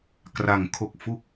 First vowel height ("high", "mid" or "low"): low